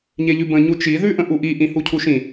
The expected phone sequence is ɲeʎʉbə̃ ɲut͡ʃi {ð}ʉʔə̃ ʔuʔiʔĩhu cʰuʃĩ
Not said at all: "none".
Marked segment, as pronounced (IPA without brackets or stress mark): ð